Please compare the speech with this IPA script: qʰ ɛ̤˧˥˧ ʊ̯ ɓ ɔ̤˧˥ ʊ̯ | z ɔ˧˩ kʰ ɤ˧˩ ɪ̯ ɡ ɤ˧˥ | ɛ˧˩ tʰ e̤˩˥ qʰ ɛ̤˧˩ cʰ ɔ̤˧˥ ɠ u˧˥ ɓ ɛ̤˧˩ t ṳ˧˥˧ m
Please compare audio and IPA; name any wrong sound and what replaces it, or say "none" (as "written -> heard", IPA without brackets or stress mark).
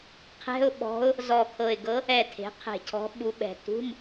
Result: ɠ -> ɓ